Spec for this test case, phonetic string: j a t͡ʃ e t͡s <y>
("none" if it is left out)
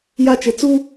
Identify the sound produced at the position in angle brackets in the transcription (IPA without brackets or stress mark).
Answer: u